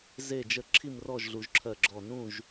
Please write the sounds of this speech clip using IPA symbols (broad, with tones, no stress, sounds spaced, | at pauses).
z e˧˩ d͡ʒ ə˧˩ ǁʰ i˥˨ m r ɔ˥˨ ʒ ɮ u˩˧ ʒ ǁʰ ɜ˧˩ ɡ͡ǁ ɔ˧˩ n ũ˥˨ ʒ